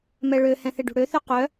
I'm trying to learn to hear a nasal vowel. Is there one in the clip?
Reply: yes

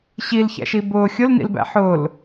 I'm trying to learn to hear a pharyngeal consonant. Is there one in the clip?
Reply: yes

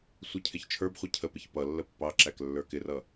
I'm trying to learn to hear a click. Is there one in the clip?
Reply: yes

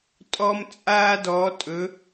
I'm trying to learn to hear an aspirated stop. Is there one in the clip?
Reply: no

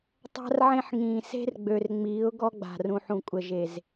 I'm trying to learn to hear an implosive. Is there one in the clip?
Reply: no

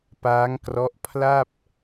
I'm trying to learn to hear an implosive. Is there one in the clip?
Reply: no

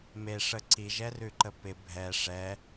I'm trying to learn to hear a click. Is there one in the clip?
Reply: yes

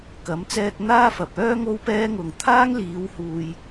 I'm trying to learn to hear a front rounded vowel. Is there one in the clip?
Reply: yes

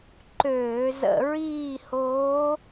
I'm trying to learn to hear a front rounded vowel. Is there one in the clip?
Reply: yes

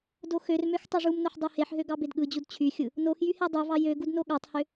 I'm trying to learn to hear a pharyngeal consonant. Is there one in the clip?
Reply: yes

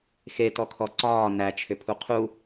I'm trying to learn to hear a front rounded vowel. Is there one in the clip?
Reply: yes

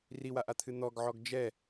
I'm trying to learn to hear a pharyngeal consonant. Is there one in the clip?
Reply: yes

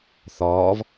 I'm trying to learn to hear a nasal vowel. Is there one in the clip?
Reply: no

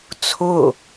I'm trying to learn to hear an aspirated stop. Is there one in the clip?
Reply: yes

